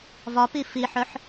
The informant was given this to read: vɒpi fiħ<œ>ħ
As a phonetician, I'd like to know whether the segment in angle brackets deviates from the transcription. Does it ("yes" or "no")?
no